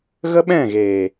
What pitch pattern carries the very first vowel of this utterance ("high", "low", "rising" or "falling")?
high